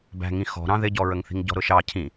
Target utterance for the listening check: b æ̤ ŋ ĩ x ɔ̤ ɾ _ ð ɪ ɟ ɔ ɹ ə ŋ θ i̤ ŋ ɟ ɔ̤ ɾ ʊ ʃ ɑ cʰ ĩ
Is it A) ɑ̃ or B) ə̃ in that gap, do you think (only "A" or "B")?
A